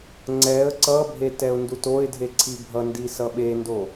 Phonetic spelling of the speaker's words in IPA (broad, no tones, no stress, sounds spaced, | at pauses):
ŋ͡ǀ ɛ ə̯ ǀ ʌ bʱ e t ɛ ʊ̯ n d u t o ɪ̯ dʱ e ǀʰ i bʱ ʌ n d i s ʌ ɓ e n d o